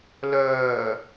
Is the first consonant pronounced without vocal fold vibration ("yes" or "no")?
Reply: no